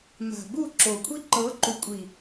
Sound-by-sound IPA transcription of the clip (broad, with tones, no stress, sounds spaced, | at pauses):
m a̤˨ b u˦˨ ǁ o˨ kʷʰ i˦ ǃ ɤ˨˦ ǃ u˨ kʷʼ i˨